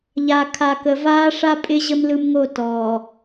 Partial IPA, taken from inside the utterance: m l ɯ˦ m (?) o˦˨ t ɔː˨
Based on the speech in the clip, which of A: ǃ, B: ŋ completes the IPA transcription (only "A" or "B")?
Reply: B